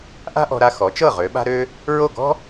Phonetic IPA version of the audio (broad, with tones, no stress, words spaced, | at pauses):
ʔa̤˥ʔɔ̤˧ɾa˧ xɔ˩˥t͡ʃɤ˥˩ ʁø˩˥ɓa̤˥ɾø˥ | ɹo˥˩ɡɔ̤˥